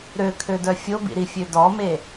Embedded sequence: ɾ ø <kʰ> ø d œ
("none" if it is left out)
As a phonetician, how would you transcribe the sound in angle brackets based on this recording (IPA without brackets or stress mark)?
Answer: kʰ